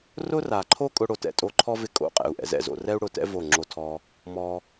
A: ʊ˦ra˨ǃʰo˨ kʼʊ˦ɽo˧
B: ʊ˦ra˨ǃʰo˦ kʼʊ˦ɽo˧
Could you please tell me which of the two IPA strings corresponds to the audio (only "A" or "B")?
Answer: B